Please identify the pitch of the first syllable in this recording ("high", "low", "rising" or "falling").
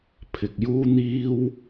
low